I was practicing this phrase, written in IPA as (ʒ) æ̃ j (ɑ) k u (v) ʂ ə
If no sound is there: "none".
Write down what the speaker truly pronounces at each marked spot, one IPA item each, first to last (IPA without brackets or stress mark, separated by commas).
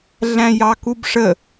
ɮ, ɑ, b